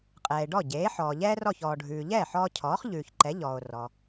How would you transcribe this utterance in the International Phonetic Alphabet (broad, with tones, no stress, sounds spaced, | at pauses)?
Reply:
qʼ ɛː˩ e̯ ɖ ɔ˥˩ ɟ eː˩˥ ħ ɔː˩ ʎ ɛː˥ r ɔ˥˩ ç ɔː˩ ɖʱ ʉː˩ ʎ ɛː˥˩ ħ ɔː˧ cʰ ɔː˩˥ χ ʎ ʉː˩ ç ǃ ɛ˩˥ ʎ ɔː˩ o̯ r ɔ˩